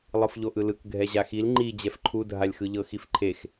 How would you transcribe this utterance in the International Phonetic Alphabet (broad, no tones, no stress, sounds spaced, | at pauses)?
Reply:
lˠ ɯ f ʎ o ʔ ɯ l ɯ k ɡʱ ɛ ʑ a x i l ŋ͡ǃ i d͡ʑ ɛ f ǃʰ u dʱ a lʲ x ɯ ʎ ɤ x i f ǃʰ e x